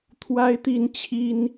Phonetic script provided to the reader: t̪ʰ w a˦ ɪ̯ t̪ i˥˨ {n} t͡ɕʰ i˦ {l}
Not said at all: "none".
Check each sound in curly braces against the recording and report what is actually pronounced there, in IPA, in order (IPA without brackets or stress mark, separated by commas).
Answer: n, n